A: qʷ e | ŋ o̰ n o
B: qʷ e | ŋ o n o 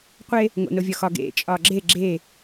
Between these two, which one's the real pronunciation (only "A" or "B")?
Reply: A